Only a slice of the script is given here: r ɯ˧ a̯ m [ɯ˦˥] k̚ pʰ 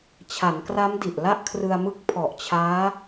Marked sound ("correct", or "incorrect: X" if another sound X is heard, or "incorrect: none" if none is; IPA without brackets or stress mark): correct